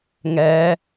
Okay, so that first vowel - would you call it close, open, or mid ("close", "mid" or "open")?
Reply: mid